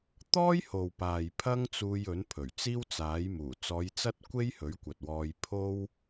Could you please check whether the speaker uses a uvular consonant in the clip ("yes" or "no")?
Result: no